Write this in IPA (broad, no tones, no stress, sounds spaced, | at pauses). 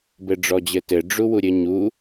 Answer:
b ɘ ɖ͡ʐ ɔ d͡ʑ ɘ t ɘ ɖ͡ʐ u w u ɾʲ ɘ ɲ u